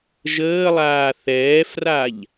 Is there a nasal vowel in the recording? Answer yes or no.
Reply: no